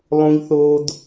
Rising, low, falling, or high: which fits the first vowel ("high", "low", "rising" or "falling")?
high